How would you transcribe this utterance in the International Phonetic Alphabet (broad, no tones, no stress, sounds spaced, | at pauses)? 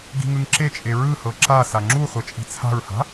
ɡ i̤ ŋ ɯ ŋ ǁ e t͡ʃʼ e ɹ ɯ h ɤ ǁ a s a ŋ͡ǁ u χʷ ɛ t͡ʃʼ i̤ t͡sʰ a̤ ɹ h a̤